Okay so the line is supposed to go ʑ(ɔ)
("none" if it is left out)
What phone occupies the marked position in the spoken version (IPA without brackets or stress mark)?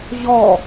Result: ɔ